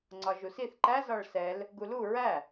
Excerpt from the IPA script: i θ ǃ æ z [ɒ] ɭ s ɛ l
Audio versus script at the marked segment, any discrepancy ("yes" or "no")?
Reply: no